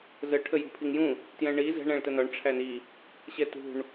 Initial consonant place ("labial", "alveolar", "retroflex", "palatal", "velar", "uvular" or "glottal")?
alveolar